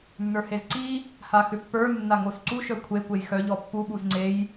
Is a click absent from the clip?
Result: no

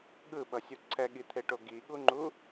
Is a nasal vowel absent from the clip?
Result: yes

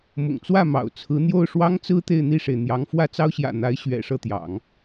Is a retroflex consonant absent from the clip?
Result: no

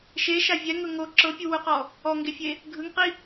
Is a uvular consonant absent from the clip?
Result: no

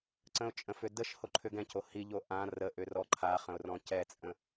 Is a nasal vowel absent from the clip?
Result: no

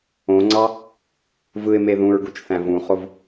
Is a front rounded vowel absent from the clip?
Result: yes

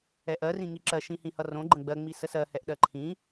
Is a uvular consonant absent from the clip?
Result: yes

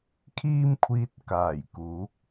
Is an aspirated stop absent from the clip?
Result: no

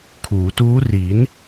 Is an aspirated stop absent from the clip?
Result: no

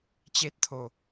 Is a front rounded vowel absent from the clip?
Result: yes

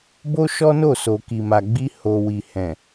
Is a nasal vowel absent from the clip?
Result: no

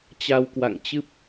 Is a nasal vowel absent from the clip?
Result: yes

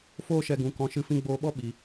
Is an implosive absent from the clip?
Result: no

